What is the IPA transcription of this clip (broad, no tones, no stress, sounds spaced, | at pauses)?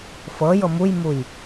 f ɤ j ɤ m u j m u j